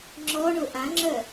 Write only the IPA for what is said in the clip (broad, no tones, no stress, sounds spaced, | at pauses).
ŋ͡ǁ ɔ ɳ ʊ ʔ ã ŋ͡ǁ œ